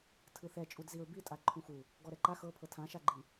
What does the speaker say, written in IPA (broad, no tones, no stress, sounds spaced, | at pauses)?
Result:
tʰ ɯ θ ɛ t͡ʃʼ u d z i ɹ b i tʼ a ǃʰ ũ x u | ɡ ɔ ɾ ɛ ǃ a x ɤ pʰ ɤ tʰ ã ʃ a ɡ͡ǃ i